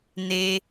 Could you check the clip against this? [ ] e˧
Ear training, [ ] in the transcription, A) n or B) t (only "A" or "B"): A